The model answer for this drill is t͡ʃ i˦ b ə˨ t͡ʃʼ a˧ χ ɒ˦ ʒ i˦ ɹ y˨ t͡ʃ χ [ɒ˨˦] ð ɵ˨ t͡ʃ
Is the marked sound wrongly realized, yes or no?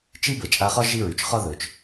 yes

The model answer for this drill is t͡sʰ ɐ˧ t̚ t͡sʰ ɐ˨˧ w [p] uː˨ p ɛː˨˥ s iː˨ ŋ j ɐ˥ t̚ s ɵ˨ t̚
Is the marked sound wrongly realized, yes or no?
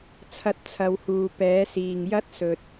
yes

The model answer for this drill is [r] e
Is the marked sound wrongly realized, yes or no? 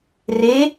no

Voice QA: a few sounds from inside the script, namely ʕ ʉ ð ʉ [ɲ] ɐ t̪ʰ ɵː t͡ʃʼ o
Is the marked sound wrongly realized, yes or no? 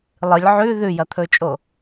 yes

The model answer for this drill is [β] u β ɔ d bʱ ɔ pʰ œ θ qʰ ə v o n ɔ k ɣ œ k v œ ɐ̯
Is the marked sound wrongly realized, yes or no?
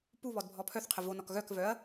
yes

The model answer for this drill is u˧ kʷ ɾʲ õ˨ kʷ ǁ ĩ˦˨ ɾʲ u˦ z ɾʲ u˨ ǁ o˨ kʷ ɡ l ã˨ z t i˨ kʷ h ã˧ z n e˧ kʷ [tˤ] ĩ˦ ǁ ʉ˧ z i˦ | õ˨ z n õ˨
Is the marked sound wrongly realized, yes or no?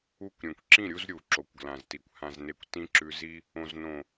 yes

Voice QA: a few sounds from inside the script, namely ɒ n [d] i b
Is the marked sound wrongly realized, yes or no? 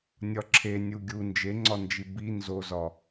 yes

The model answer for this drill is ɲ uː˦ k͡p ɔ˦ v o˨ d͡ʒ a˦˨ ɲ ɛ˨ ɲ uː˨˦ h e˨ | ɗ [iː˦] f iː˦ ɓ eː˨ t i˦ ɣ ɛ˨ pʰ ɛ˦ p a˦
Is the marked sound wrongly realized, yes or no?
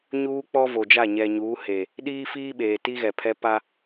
no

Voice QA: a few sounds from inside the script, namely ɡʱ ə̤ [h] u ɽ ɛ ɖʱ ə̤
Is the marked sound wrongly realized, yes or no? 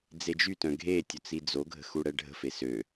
yes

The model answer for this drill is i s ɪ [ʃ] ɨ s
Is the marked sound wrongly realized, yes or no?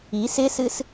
yes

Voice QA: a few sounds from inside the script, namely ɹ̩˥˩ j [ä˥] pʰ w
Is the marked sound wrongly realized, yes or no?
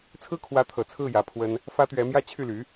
yes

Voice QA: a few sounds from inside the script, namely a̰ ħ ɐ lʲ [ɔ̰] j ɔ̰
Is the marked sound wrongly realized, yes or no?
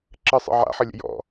yes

